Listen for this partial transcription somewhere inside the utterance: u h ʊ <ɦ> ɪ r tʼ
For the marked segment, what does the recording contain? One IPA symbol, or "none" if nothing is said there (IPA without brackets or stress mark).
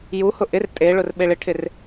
ʔ